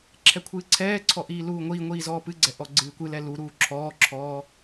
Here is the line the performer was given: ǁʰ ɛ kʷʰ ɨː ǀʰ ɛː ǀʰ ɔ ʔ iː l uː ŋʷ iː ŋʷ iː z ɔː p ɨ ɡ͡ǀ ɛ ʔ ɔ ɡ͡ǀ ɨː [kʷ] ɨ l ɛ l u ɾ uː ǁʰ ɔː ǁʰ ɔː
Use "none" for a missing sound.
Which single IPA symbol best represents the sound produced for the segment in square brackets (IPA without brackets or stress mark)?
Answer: kʷ